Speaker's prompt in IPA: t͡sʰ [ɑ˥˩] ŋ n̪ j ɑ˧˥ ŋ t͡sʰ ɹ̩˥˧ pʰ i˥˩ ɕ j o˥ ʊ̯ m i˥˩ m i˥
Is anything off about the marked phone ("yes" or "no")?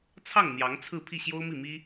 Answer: no